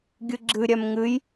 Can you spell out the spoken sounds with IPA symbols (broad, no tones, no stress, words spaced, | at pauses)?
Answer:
ɡʲɨɡ͡ǁɨ ɾʲɛmŋɨj